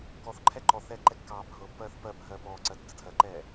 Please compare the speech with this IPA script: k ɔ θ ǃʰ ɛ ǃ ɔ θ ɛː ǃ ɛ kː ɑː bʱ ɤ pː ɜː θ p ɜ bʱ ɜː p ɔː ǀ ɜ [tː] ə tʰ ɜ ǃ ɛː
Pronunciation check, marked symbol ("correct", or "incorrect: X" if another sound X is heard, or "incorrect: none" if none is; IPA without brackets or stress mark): correct